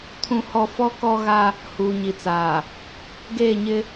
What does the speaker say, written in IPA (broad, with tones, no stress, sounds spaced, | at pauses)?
tʰ ũ˦ h ɔ˦ f ɔ˦ k ɔ˦ ɣ a˦ | h uː˨ ɲ i˨ t͡s aː˨ | ɡ eː˦˨ ɲ ɪ˦